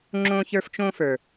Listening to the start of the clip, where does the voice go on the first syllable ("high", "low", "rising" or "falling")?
high